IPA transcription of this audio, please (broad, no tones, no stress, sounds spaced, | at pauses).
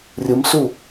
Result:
rʲ ɯ m s u